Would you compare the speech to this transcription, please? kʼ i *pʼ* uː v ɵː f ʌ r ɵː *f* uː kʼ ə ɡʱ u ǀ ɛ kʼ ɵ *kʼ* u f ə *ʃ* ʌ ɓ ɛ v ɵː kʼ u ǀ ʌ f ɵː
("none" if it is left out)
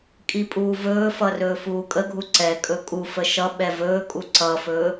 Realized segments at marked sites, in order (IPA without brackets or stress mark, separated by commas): pʼ, f, kʼ, ʃ